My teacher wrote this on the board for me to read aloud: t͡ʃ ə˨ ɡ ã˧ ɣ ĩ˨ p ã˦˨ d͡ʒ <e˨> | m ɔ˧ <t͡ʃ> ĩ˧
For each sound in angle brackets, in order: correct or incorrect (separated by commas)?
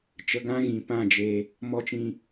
incorrect, correct